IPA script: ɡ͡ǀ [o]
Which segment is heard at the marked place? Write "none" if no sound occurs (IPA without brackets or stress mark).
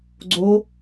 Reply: o